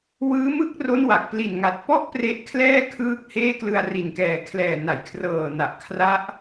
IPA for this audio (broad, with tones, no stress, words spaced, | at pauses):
wɯː˦˥mɯ˥˩k̚ro˦˥n wa˨˩k̚ pli˨˩nŋa˨˩t̚pɔ˥˩ʔ pre˦˥ʔkʰlɛː˥˩ kʰɯː˥˩k̚heː˥˩ klɯ˧a̯ri˨˩nkɛː˨˩ kʰlɛː˨˩na˩˦jkʰrɤː˨˩na˨˩ʔ kʰra˦˥ʔ